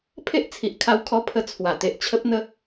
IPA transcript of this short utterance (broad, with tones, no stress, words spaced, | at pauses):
pʰe˦ʔt͡sʰi˨ʔkʰa˧wkʰɔ˧ pʰə˧t͡sʰwa˨˩ t̪e˨ʔt͡ɕʰə˦p̚n̪ə˦